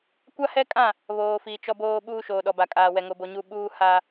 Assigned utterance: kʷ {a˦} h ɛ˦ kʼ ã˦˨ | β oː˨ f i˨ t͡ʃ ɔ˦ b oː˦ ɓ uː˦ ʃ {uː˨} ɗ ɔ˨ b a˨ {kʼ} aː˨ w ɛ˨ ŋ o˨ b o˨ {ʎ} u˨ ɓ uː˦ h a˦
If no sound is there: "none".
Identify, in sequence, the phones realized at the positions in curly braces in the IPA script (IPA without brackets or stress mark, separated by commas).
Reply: a˦, oː˨, kʼ, ɲ